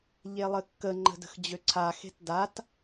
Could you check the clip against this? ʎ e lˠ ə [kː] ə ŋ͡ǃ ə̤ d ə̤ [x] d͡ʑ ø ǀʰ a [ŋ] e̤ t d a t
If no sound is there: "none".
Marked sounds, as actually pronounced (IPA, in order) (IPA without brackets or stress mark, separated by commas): kː, x, x